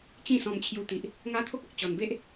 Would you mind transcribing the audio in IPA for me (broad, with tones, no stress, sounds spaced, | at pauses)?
t͡ɕ ĩ˥˧ s ɔ̃˧ m t͡ɕʰ j u˧ t̪ i˨ ʔ | ŋ a˦ t̪ʰ o˦ k̚ ɔ˨ k̚ t͡ɕ ɔ˨˩ n b e˦ ʔ